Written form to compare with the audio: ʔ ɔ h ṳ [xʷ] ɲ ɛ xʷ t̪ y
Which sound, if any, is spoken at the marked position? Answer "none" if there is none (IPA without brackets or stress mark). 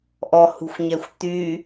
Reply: xʷ